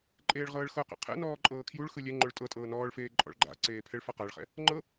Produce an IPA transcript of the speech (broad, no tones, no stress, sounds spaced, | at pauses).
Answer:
ǃʼ eː ɭ ʁ ɤː ɭ x ɤ q ɛ̰ qʰ ɛ̰ n ɔː ǃʼ ɤː kʰ j u ɭ x ɯ lʲ ɛ ŋ͡ǃ o ɭ tʼ ɤ tʼ ɤː n ɔː ɭ f eː ǃʼ ɔ̰ ɭ ɡ͡ǃ a̰ ǀ eː pʰ ɛ ɭ f a q a ɭ χ ɛ̰ | ŋ͡ǃ ɤ